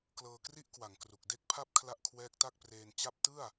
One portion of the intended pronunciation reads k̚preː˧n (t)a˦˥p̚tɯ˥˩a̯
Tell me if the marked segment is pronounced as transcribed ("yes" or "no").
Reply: no